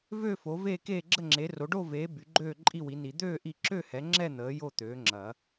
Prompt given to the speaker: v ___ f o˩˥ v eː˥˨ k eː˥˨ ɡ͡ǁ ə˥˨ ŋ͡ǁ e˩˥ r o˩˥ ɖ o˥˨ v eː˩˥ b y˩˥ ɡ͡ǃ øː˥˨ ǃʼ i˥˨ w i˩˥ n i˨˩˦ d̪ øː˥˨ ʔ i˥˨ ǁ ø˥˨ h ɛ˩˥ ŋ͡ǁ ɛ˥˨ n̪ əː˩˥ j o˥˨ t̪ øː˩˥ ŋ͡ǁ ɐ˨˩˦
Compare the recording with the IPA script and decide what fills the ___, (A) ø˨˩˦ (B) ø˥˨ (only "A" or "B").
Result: B